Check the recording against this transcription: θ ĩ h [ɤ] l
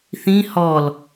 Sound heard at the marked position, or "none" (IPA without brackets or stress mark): ɔ